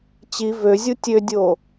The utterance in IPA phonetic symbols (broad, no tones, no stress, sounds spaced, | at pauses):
t͡ɕ i v ø zʲ u tʲ ø dʲ o